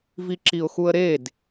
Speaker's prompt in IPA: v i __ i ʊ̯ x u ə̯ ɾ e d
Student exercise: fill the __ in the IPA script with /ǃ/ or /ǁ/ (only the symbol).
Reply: ǁ